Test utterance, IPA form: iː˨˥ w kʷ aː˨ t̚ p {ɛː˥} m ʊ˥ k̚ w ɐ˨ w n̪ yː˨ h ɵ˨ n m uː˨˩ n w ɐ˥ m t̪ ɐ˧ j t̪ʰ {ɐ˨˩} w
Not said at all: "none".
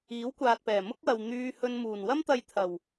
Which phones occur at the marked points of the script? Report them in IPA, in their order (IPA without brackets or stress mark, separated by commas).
ɛː˨˩, ɐ˨˩